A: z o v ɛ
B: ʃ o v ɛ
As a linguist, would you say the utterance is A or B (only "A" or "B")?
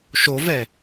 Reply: B